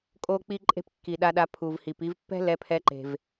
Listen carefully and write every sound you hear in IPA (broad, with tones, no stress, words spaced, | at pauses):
kʼo˦k͡pi˦ǃʼe̤˦p kːi˨ɗa˧ɗa˧ pʰu˨vhi˨p i˧vpːɛ̤˦ lɛ˧pʰɛ˧ǃe̤˨v